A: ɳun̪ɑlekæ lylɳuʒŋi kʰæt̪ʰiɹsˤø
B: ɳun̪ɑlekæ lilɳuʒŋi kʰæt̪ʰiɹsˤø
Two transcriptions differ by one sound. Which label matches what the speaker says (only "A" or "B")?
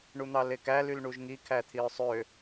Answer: A